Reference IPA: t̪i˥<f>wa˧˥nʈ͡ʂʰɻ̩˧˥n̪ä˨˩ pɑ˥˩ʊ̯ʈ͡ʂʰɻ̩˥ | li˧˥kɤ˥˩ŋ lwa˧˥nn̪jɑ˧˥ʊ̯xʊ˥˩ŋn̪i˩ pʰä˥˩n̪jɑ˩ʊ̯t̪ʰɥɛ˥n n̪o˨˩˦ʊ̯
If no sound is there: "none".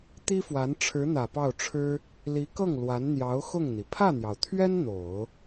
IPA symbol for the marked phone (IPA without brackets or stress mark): f